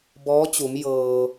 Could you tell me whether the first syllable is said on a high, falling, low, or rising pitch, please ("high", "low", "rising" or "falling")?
rising